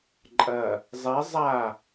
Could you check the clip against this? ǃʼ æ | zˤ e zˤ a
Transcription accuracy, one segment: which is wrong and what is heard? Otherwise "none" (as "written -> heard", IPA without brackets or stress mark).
æ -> ɐ